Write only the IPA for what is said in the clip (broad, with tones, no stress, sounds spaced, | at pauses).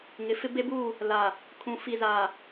ŋ ɪ˨˦ f ɪ˦ b e˦ b uː˦˨ | l a˨ | kʰ ũ˨ f i˨ z aː˨